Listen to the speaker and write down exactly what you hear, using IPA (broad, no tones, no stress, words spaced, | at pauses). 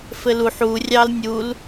fɘluħ urʲɑl nʲul